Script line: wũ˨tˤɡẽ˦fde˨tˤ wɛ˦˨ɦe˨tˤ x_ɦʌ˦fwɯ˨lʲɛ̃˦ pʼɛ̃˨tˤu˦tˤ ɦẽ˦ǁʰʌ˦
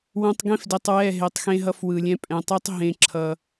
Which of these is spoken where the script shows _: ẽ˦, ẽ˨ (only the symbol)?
ẽ˦